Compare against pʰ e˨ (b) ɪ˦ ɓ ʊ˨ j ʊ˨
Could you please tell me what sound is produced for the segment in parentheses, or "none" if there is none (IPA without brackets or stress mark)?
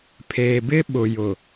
b